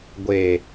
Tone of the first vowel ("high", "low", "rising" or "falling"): low